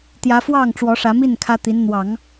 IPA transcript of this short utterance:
t̪ j ä˧˥ f w ɑ˥˩ ŋ ʈ͡ʂ w ɔ˧˥ ʂ ä˧˥ m i˥˩ n kʰ ä˥ t̪ i˧˥ n n̪ w ɑ˨˩˦ ŋ

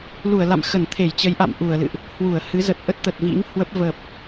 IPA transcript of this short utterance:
l u˧˩ ə̯ l a̰˧˨ m x ə˧˩ n t̪ʰ e˧˩ j t͡ɕ ə˨˦ j ʔ a̰˧˨ m ʔ u˧˩ ə̯ l ɨ̰˧˨ ʔ | h w u˧˩ ə̯ h ɨ˨˦ z ə˨˩ t̚ ʔ ə˦˥ t̚ t̪ ə˨˩ t̚ v ḭ˧˥ ŋ h w ə˦˥ p̚ v ə˨˩ p̚

